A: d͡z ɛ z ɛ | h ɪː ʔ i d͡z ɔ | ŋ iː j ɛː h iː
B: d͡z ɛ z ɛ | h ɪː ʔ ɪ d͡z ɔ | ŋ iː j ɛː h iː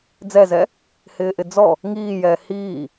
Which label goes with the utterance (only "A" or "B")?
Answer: B